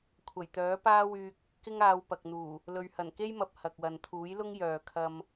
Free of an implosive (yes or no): yes